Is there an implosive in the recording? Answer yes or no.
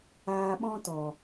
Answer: yes